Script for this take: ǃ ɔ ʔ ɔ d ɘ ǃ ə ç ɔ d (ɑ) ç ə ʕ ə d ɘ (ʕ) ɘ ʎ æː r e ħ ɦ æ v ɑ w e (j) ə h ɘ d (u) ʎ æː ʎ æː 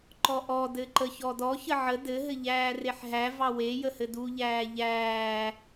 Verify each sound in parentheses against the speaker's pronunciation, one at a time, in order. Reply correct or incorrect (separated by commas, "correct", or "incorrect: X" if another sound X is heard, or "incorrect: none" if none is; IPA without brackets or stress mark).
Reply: incorrect: ɔ, incorrect: ɦ, correct, correct